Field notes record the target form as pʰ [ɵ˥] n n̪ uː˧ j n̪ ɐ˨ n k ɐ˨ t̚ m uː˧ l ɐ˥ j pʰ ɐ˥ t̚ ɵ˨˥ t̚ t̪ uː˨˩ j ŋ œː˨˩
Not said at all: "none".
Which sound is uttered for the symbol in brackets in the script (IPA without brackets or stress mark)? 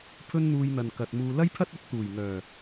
ɵ˥